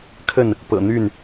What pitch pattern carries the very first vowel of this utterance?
falling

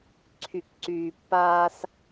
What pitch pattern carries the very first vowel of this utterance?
low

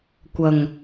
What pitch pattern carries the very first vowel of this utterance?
low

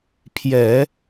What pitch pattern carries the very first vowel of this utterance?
low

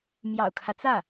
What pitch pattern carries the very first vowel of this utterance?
low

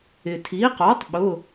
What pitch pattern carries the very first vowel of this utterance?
low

